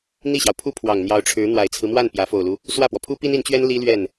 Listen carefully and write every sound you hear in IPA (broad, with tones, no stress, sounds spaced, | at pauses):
n̪ i˥˩ ɕ j ɑ˩ ʊ̯ pʰ u˥ pʰ w ɑ˨˩ ŋ n̪ j ɑ˧˥ ʊ̯ ʈ͡ʂʰ ɻ̩˧˥ n̪ w a˨˩ ɪ̯ t͡sʰ ɹ̩˦ m w a˥˩ n p j ä˧˥ f o˨˩ ʊ̯ l u˦ | s w ä˥˩ p w ɔ˩ pʰ u˥ p i˥ n i˧˥ n t͡ɕ ɥ ɛ˥ n l i˥ l ɥ ɛ˥˩ n